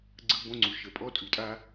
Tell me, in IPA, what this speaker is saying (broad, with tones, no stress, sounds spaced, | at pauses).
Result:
ɡ͡ǀ ɯ˧ b õ˧ ŋ͡ǀ u˨ ʃ ə˨ pʼ ɔ˧ tʼ ʉ˨ tʼ a˦